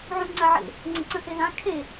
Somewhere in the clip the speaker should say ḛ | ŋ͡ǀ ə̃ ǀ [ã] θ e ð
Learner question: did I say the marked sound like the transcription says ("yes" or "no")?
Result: no